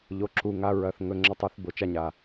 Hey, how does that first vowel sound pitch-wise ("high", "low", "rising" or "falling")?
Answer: rising